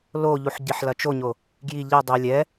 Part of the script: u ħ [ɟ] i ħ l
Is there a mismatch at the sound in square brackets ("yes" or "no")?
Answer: no